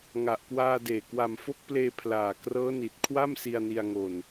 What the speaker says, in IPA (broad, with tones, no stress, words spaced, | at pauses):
ŋa˨˩ʔkwaː˧deː˨˩ kwa˨˩mfo˦˥k̚pleː˧ pʰlaː˨˩krɤː˦˥ni˨˩t̚ kʰwa˥˩msi˧a̯ni˧a̯ŋo˧n